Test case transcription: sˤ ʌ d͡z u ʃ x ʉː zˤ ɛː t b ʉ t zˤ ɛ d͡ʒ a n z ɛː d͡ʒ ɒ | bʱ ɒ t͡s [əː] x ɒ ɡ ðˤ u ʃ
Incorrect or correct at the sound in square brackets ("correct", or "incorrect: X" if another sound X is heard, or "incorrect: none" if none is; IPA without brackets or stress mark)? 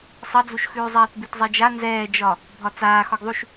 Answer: incorrect: aː